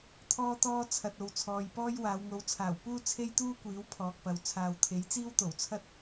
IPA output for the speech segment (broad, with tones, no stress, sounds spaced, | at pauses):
t̪ʰ ɔː˥ t̪ ɔː˥ t͡sʰ ɐ˨ t̚ o˨˧ w t͡sʰ ɔː˨ j p ɔː˥ j w aː˨˧ w ŋ o˨˥ w t͡sʰ aː˨˩ w p uː˥ t͡sʰ e˥ j t̪ uː˥ kʷ iː˨˥ w pʰ ɔː˨ k̚ p ɐ˨ w t͡sʰ aː˨ w t̪ʰ e˨˥ j t͡s iː˥ w t̪ o˨˩ w t͡sʰ ɐ˥ t̚